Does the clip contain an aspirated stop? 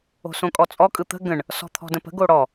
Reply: yes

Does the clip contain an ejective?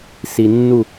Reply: no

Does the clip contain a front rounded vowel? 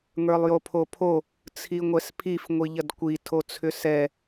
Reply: yes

